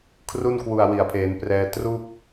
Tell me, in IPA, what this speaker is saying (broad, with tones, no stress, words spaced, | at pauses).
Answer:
kʰru˥˩nkwu˨˩a̯ wi˨˩a̯pʰeː˩˦nprɛː˧ tru˥˩k̚